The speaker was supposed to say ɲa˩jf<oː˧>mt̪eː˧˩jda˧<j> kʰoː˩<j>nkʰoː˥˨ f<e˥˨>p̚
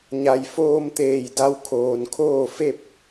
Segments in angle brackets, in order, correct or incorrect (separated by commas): correct, incorrect, incorrect, correct